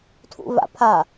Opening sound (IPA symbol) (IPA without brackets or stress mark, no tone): tʰ